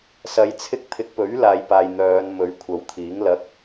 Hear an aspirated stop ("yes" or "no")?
yes